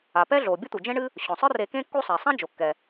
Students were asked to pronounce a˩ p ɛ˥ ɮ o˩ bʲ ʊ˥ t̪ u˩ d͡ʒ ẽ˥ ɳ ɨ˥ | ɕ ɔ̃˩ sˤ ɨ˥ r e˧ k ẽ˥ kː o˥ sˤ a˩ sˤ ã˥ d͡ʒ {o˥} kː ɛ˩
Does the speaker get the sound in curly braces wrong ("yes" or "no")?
yes